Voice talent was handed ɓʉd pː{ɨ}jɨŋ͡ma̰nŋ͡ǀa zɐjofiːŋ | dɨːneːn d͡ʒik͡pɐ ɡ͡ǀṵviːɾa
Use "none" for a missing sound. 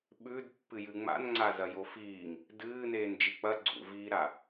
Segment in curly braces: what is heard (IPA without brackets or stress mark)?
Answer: ɨ